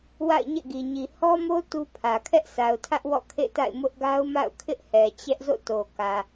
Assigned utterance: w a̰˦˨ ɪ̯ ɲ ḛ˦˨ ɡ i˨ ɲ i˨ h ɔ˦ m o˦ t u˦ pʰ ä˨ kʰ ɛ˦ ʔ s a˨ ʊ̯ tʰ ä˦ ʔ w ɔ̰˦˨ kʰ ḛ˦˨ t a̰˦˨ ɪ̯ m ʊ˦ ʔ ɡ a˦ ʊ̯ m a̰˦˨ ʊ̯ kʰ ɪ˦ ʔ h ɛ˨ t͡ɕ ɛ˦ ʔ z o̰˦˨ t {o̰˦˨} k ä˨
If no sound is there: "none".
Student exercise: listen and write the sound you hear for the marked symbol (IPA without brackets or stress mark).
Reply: o˨